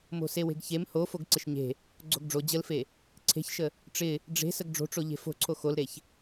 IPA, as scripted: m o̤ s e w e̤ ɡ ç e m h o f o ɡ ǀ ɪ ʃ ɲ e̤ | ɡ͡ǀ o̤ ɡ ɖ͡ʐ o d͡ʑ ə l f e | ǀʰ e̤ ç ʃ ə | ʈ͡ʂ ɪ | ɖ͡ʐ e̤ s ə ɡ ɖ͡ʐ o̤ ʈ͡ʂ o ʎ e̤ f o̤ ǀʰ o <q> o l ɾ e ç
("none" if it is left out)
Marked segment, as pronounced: x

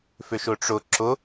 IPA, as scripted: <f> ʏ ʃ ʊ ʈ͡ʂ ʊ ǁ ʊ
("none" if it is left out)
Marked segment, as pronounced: f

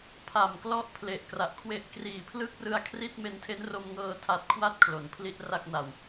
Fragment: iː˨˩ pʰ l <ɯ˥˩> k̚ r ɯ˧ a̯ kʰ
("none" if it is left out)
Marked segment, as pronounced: ɯ˥˩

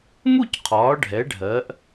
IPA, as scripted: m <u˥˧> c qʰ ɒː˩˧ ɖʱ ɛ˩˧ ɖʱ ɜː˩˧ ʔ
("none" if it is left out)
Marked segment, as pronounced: u˥˧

